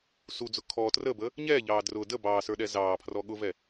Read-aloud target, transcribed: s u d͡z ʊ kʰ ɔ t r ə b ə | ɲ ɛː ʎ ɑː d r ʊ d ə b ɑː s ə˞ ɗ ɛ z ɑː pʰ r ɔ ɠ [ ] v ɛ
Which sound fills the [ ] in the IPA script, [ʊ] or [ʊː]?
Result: ʊ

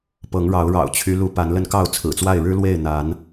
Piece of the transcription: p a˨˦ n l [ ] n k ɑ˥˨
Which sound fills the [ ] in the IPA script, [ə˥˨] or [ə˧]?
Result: ə˧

